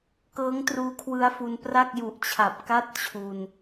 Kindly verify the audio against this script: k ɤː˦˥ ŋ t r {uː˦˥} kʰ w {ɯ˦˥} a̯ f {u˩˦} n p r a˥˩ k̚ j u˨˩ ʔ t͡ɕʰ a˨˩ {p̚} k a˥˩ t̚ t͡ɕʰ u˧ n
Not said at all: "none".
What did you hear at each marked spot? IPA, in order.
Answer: uː˦˥, ɯ˦˥, u˧, p̚

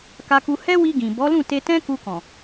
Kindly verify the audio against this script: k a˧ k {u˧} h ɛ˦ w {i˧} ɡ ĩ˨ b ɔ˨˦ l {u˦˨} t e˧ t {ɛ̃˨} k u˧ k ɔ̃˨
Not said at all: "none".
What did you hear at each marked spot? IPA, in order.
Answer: u˧, i˧, ũ˦˨, ɛ̃˦

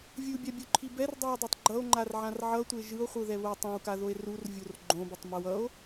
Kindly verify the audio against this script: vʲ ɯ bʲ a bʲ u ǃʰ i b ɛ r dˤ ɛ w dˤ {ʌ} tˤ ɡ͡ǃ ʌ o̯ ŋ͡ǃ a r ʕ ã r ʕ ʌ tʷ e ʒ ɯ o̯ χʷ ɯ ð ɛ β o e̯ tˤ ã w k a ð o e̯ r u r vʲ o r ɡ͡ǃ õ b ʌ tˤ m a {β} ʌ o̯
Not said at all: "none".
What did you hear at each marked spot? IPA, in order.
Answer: a, w

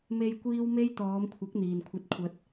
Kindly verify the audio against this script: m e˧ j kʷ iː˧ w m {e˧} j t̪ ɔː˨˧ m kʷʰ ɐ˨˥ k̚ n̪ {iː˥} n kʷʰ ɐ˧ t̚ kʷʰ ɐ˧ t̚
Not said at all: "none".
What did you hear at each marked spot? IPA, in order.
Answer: e˥, iː˨

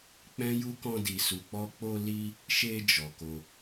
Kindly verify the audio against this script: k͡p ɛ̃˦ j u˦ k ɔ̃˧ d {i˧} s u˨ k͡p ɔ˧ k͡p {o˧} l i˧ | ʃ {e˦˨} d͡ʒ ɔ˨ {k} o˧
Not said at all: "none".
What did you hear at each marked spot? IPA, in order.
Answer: i˨, o˧, e˧, k

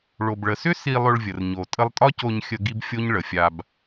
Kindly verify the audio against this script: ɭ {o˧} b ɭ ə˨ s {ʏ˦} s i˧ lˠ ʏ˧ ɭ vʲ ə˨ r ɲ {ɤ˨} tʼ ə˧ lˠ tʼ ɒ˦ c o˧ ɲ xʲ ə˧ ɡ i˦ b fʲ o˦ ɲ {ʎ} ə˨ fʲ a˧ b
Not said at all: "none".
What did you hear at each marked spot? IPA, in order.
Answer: o˨, ʏ˦, o˨, ɭ

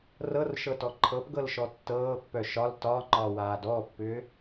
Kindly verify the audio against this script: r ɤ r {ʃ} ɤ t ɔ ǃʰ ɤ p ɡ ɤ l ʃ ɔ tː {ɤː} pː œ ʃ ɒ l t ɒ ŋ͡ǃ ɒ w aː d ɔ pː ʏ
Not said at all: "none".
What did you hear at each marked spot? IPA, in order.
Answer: ʃ, ɤː

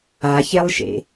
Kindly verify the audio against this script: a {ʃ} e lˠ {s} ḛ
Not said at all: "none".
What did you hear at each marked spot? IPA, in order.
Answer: ç, ʃ

